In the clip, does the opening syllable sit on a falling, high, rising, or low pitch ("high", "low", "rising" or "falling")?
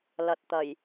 low